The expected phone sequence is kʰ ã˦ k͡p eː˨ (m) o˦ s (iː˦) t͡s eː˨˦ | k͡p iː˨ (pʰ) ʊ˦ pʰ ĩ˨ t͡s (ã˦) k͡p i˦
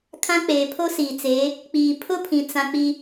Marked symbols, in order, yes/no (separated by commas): no, no, yes, yes